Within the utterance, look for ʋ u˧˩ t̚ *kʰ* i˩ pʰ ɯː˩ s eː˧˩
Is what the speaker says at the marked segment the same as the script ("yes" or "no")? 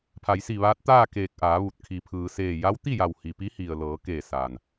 yes